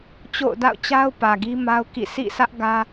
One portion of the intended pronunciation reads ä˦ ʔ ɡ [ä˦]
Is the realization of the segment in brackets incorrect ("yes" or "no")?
no